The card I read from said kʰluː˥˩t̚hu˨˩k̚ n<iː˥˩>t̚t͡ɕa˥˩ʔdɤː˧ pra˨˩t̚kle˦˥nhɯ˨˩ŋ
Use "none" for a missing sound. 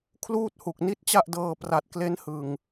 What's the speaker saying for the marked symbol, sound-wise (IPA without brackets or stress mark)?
i˥˩